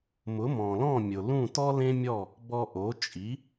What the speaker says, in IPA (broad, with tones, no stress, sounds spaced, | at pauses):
m ʊ˩˥ m ɔ̃˩ l ɔ̃˥˩ mʲ ʊ˩ l ũ˥˩ t ɔ˥ l ẽ˥ mʲ ɔ˥˩ | b ɔ˧ ʔ o˩˥ t͡ʃʼ i˩˥